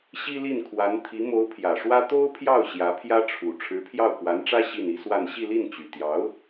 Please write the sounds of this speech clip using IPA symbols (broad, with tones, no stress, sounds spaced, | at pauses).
ɕ i˥ l i˥˩ n kʰ w a˧˥ n t̪ʰ i˧˥ m o˧˥ ʊ̯ pʰ j ä˨˩ ʂ w ä˥ t̪ o˥ ʊ̯ pʰ j ɑ˥˩ ʊ̯ ɕ j ä˧˥ pʰ j ä˥ ʈ͡ʂʰ u˨˩ ʈ͡ʂʰ ɻ̩˧˥ pʰ j ɑ˥˩ ʊ̯ k w a˧˥ n ʈ͡ʂ ä˥ ɕ i˥˩ n i˥ s w a˥˧ n ɕ i˥˧ l i˥˩ n t͡ɕ y˨˩ t̪ j ɑ˧˥ ʊ̯